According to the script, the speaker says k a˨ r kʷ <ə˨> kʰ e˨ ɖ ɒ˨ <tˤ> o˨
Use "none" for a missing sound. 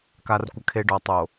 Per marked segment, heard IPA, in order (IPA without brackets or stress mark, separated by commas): ə˨, tˤ